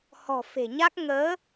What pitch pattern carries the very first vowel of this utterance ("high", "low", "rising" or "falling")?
low